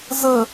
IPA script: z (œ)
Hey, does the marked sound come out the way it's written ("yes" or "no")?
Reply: no